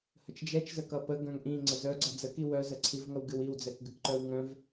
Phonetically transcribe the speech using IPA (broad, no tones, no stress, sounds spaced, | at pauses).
h ə t͡ʃ d͡ʒ ɛ t͡ʃ z ə k ʌ p ə ɡ œ̃ ŋ ʔ ĩ ŋ͡ǀ ə z œ ɡ͡ǀ ʌ d͡z ə k i w œ z ə ǀʰ i v ŋ ʌ w ɡ ɨ w i w d͡z ɛ k ɡ ɨ k ǃ œ w ŋ œ̃ v